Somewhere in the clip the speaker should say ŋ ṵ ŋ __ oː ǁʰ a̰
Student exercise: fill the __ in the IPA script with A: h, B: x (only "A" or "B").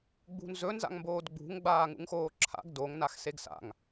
B